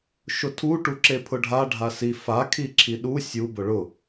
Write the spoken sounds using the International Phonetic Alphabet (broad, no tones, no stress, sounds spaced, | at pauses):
ʃ ʊ tʰ u ʈ u ǁ e pʰ ʊ ɖʱ a ɖʱ a s i f a kʰ i ǁʰ i ɗ u sʲ u b ʊ ɭ ʊ